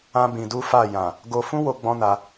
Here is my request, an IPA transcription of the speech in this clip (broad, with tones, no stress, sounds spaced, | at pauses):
ã˦ b ĩ˧ d u˦ f a˦˨ j ã˨ | ɡ o˧ f ũ˦ w o˦ ɡ͡b ɔ̃˦ n a˧